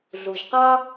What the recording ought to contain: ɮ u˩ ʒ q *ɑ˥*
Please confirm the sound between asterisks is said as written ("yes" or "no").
yes